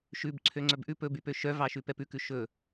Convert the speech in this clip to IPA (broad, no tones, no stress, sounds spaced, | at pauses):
ʃ ʉ b ǀʰ ø ŋ͡ǀ œ b ʔ ʉ p ɵ b y p ø ʃ œ v ɑ ʃ ʉ p ɛ p ʉ k ʉ ʃ ɵ